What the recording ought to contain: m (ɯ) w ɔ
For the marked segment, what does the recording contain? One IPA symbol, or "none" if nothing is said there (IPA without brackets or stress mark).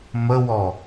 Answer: ə